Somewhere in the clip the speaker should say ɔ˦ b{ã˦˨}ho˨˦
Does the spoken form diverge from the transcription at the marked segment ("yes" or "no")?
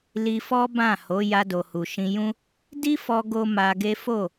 no